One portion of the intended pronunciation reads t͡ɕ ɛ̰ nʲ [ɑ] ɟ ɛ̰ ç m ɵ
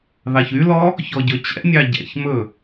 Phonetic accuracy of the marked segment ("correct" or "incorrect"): correct